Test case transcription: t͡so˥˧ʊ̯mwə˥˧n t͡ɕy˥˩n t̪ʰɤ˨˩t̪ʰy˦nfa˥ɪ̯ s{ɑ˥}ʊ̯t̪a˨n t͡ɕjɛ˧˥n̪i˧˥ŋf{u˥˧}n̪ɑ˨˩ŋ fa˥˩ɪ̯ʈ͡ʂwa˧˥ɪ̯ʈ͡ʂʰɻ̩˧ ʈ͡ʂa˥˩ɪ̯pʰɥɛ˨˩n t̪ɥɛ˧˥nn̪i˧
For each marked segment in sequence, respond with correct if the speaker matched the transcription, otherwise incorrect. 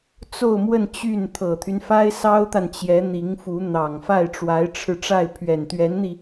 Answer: correct, incorrect

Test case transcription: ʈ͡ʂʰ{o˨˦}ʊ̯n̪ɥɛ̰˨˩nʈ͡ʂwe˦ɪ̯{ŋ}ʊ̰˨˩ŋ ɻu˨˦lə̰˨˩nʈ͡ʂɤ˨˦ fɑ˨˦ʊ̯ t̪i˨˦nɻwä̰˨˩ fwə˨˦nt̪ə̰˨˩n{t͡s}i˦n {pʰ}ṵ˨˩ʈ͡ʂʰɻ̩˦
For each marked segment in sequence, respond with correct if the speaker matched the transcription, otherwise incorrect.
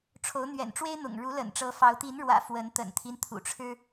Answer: correct, incorrect, incorrect, incorrect

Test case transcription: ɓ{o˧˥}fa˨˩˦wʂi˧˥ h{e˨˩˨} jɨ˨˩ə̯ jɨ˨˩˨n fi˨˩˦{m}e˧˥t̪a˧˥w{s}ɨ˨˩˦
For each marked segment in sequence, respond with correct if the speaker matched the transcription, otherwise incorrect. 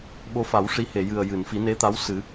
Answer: correct, correct, incorrect, correct

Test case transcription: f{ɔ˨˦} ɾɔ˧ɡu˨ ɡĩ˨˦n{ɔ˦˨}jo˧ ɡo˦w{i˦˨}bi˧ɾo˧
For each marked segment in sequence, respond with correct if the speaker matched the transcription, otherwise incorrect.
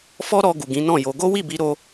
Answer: incorrect, incorrect, correct

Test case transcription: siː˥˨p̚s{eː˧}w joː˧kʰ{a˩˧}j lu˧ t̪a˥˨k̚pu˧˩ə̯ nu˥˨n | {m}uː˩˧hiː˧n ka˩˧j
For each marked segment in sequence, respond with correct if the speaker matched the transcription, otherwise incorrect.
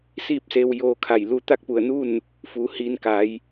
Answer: correct, incorrect, incorrect

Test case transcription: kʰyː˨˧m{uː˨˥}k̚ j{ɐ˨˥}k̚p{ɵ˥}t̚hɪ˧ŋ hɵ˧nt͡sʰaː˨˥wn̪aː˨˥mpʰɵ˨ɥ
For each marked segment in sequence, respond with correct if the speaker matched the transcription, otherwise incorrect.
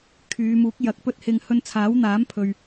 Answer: correct, correct, correct

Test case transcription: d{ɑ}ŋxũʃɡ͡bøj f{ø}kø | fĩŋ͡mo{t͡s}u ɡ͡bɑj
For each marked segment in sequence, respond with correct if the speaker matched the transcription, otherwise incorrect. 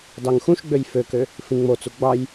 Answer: correct, correct, correct

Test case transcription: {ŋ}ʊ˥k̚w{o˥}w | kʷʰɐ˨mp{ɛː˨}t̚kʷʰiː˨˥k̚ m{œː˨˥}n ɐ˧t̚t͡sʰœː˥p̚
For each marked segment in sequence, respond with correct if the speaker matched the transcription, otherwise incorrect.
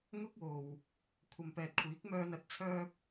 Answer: correct, incorrect, correct, incorrect

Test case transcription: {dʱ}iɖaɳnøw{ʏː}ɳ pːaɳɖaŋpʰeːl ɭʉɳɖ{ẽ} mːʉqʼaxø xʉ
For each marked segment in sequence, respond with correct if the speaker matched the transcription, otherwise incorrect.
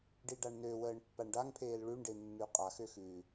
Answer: incorrect, incorrect, incorrect

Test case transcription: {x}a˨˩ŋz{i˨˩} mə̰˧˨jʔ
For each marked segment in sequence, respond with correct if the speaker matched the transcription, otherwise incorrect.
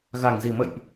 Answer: incorrect, correct

